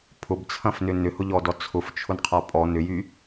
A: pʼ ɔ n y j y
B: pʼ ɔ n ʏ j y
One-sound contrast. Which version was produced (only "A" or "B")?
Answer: B